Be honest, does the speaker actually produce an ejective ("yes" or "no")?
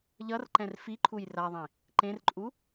yes